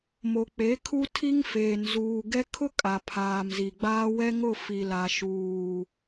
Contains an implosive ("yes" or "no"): no